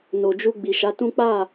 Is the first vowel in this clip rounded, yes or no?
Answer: yes